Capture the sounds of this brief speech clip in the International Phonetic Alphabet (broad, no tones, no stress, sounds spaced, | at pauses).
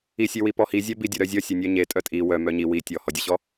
i sʲ e w i p ɔ h i zʲ œ b i dʲ œ ɾ œ zʲ ɔ sʲ e nʲ œ ɲ e tʼ œ tʼ i w œ m œ ɲ i w i tʲ ɔ h ɔ dʲ œ ɕ ɔ